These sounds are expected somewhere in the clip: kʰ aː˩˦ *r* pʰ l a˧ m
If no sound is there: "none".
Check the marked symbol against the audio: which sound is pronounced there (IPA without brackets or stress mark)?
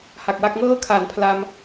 n